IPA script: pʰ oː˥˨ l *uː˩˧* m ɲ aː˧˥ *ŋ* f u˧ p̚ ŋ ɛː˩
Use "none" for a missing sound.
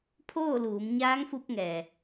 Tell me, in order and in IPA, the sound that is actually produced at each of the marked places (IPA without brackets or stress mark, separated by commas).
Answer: uː˩˧, ŋ